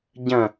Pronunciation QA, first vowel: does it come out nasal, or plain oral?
nasal